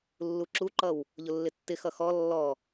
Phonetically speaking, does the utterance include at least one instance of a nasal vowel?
no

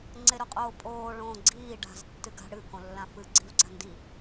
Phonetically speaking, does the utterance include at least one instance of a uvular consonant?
yes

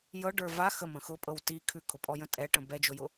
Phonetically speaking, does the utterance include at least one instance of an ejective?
yes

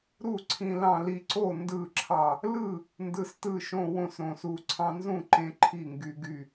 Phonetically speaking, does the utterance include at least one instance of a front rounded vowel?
yes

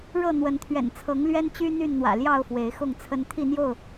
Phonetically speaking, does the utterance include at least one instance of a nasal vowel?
no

